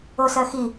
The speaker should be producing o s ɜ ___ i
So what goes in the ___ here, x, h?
x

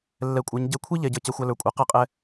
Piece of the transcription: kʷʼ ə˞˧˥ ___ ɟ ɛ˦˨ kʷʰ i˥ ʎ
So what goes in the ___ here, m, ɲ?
ɲ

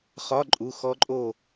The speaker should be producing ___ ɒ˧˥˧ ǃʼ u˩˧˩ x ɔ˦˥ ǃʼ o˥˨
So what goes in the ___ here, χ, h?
χ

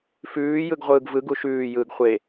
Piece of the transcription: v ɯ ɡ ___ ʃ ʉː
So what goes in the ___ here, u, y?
u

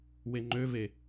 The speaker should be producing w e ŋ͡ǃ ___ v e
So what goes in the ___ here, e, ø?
ø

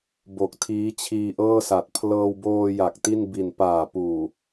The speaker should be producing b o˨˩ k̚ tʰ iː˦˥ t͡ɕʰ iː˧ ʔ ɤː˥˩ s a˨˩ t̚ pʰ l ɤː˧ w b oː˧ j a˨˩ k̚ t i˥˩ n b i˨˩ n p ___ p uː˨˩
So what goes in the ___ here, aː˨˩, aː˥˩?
aː˨˩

